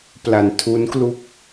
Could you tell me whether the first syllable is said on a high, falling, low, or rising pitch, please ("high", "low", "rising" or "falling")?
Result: low